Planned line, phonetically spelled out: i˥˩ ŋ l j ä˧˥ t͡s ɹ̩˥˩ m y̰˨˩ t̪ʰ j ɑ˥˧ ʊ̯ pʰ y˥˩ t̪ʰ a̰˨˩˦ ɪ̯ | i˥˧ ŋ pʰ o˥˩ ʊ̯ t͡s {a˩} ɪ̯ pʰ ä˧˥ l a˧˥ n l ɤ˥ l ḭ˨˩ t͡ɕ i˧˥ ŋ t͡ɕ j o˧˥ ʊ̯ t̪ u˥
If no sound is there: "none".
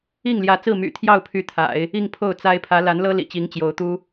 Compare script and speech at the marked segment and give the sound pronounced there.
a˥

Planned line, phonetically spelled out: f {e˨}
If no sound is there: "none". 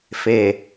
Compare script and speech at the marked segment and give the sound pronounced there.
e˨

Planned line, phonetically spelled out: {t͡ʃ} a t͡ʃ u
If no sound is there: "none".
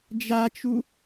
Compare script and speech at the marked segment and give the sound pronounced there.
d͡ʒ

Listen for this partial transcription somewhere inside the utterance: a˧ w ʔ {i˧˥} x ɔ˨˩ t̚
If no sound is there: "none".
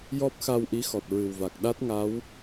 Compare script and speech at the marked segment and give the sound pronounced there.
i˧˥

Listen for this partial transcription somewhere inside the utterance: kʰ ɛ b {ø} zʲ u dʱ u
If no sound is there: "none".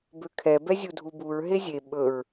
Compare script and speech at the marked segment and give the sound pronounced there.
ɛ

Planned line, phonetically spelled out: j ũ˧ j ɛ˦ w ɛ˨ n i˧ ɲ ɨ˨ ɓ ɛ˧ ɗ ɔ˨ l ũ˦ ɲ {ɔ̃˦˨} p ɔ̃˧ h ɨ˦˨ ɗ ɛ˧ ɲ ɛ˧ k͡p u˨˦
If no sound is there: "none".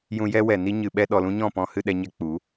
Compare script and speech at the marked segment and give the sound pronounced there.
ɔ̃˦˨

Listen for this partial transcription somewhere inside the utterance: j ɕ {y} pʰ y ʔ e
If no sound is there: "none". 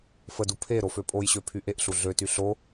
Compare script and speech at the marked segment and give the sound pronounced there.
ø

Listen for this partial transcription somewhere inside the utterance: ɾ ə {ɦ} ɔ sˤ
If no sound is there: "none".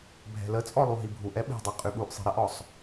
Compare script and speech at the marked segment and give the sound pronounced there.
ʔ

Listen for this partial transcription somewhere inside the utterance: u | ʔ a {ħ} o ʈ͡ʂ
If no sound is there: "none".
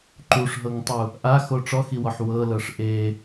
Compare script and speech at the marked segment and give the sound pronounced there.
x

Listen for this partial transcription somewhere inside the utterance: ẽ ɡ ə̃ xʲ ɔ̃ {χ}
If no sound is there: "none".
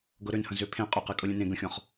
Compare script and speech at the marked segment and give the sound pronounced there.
χ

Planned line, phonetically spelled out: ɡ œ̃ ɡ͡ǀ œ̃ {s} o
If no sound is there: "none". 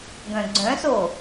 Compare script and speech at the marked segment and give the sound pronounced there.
s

